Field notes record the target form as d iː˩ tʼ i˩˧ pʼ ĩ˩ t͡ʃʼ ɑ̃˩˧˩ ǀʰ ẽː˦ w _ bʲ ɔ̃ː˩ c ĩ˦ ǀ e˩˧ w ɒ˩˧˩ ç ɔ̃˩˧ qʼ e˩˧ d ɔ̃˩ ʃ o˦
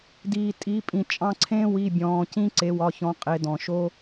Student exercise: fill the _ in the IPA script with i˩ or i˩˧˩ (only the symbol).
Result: i˩˧˩